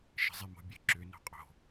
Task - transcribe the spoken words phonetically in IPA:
ʃ ə̤ zˤ e m o̤ bʲ ɨ ǁ ʏ n o̤ qʼ o̤

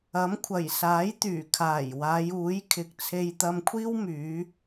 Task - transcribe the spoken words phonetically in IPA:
ɐ˨˥ m kʷʰ ɐ˨˩ j s aː˨˥ j t̪ yː˨˩ kʰ aː˨˩ j w aː˨˧ j uː˨˥ j kʰ ɪ˨ k̚ t͡sʰ e˧ j t̪ ɐ˧ m kʷʰ iː˥ w m yː˨˧

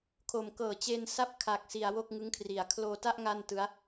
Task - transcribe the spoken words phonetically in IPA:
kʰ o˩˦ m k ɤː˨˩ t͡ɕ e˧ n s a˥˩ p̚ kʰ a˨˩ k̚ s i˩˦ a̯ w o˥˩ k̚ ŋ ɯ˦˥ ŋ kʰ r i˨˩ a̯ kʰ l oː˧ t a˥˩ ʔ ŋ a˥˩ n t ɯ˦˥ a̯

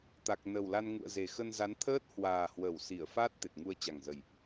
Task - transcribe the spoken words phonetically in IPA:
t̪ a˨˩ k̚ n ə˨˩ w l a˧ n ŋ ṵ˧˨ ə̯ z e˨˩ x ə˧ n z a˨˦ n t̪ʰ əː˦˥ t̚ h w aː˨˩ h w ə˧˩ w s i˧˩ ə̯ f a˦˥ t̚ t̪ e˨˩ t̚ ŋ u˧ ə̯ t͡ɕ a˨˩ ŋ z ə˨˩ j

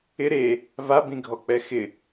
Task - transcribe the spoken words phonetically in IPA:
ɪ ɾ e | v a b ĩ ɡʱ ɔ k͡p ɛ x ɪ

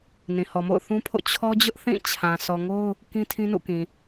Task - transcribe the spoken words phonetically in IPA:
n ĩ˨ h ɔ˨ m o̰˦˨ ʊ̯ θ ũ˦ pʰ o̰˦˨ t͡ɕʰ ɔ˦ d͡ʑ ʊ˦ ʔ θ ĩ˦˨ t͡ɕʰ ã˨ s ɔ˨ ŋ o˦ ʊ̯ | k ĩ˦ tʰ ĩ˦ n ṵ˦˨ k ĩ˨

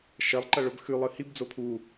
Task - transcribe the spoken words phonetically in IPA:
ʃ ɐ lˠ ǃ ɐ ɭ ɵ b x ʉ lˠ ɨ h i b d͡z o pʰ u

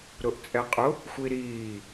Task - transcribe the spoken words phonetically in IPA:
ɾ ʊ ʔ t͡sʼ ɛ qʼ ʊ | xʷ i ɾ iː

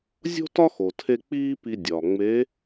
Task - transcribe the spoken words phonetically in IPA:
zʲ o̤˥ t ɒ˥ x o˩ tʰ e˧ k͡p iː˥ p i˧ dʲ ɒ˩ ŋ͡m e˧˥

